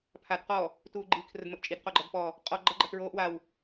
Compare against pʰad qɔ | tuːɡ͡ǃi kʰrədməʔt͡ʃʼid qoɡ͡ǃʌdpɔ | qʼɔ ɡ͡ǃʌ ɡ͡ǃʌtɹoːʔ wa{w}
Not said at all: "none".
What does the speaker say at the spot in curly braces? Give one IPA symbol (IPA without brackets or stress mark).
w